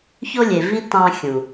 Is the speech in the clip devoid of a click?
yes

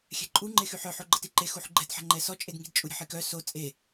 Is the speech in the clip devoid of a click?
no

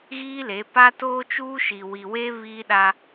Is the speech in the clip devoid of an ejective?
yes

